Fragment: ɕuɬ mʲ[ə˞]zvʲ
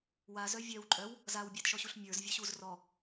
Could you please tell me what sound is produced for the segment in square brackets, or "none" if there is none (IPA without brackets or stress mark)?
ə˞